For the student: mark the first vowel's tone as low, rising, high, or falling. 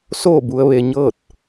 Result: falling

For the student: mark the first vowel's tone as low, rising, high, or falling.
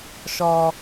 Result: low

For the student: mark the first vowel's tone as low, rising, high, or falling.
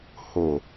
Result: low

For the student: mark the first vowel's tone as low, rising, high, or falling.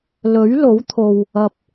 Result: rising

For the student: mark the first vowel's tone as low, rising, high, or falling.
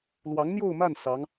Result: rising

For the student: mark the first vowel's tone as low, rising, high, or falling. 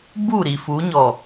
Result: falling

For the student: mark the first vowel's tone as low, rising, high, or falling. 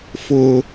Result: high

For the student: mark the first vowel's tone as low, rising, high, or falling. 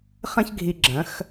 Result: high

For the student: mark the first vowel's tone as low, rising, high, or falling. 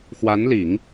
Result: rising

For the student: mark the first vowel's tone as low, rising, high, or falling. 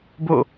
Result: falling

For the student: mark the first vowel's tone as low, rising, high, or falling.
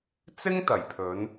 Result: high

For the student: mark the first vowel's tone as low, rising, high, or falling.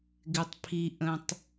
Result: low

